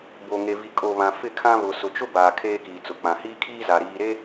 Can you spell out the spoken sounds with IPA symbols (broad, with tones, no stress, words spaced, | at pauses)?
bo˨ŋe˨vi˨ kʼo˨βã˨ fɪ˦˨kʰã˦ βʊ˨sʊ˨t͡ʃʊ˦baː˨ kʰeː˦kiː˨t͡sʊ˨ k͡pã˨hiː˦kʰiː˦za˨ ɾiː˨ɾe˦